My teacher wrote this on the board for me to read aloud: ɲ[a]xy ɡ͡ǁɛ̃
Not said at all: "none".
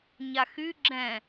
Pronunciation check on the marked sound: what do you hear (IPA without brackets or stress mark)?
a